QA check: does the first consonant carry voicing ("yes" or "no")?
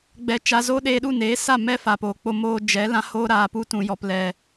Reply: yes